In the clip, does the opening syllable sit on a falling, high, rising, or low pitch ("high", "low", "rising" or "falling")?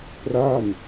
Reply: falling